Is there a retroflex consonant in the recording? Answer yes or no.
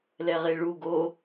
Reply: yes